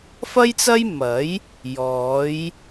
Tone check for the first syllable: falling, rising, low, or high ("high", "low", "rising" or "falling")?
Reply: high